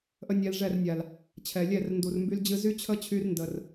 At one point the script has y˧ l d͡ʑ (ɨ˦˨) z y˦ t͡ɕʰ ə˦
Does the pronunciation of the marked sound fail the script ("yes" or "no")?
yes